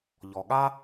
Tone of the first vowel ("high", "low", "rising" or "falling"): low